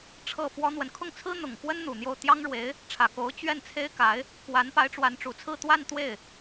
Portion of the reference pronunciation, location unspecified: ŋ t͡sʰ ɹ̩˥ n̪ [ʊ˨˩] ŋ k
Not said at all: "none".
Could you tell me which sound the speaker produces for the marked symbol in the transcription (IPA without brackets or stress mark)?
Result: ʊ˨˩